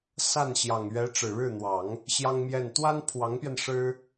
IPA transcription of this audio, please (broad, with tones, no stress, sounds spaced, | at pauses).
s a˥˩ n ɕ j ɑ˨˩ ŋ ɥ ɛ˧˥ ʈ͡ʂ ɻ̩˨˩ ɻ ɻ̩˥˩ n̪ w ɑ˨˩˦ ŋ | ɕ j ɑ˥ ŋ m j ɛ˥˩ n t̪ w a˥ n pʰ w ɑ˧˥ ŋ p j ɛ˧ n ʂ ɻ̩˥